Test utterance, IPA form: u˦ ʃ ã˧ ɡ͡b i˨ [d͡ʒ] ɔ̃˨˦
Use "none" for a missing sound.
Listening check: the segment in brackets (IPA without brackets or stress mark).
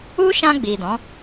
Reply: d